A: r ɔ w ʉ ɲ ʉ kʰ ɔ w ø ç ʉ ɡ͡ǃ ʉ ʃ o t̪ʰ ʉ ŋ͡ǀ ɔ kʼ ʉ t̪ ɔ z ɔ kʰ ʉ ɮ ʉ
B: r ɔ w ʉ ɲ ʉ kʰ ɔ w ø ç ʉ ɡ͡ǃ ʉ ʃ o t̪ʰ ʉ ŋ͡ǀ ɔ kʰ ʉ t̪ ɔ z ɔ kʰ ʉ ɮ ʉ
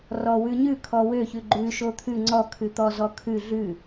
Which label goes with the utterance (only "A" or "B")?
B